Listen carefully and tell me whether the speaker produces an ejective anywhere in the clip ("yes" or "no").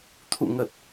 no